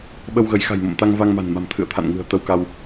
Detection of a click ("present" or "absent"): absent